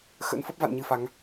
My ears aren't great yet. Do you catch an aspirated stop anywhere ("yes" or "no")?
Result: no